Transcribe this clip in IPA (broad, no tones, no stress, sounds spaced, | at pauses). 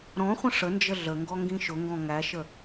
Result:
ɾ ɔ̃ χʷ ə̃ ʂ ə n d͡ʒ ə ɮ ə ŋ ɡ ɔ ŋ ɡ ĩ ʃ ʊ ŋ ɡ ɔ̃ ŋ æ ʃ ə